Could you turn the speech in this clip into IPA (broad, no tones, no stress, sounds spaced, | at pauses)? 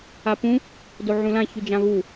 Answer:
a p ũ | d o ʕ ũ l ã ç y d͡ʒ ã β u